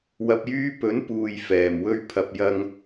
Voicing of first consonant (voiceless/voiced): voiced